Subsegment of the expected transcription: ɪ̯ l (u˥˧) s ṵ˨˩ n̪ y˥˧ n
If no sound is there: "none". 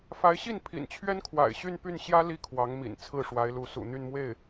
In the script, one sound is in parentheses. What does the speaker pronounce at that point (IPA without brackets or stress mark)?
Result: u˧˥